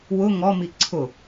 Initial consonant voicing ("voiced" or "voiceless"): voiced